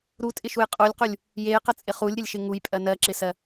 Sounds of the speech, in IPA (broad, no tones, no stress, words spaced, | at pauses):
ɾutʼɪʃuj qʼulʲqulʲ | jejqət͡sʼɪ χulʲɾʲəlʲʃɪ ŋujpʼɜ nɜǁɪsɜ